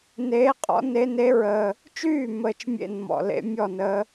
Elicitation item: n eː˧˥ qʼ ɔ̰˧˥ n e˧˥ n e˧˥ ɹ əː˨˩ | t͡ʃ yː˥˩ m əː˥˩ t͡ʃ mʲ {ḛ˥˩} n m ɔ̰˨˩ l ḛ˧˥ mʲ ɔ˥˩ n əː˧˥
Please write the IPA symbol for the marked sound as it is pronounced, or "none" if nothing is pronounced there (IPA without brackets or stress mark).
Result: ḛ˥˩